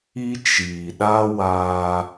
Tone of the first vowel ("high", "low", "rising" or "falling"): high